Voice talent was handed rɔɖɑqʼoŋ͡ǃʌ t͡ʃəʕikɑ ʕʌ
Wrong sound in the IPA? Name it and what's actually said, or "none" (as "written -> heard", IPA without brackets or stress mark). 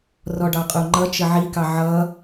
none